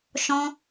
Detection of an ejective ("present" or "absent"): absent